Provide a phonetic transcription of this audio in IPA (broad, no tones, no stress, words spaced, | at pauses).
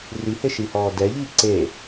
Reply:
riheʃihɔː dɛʎiː ǀe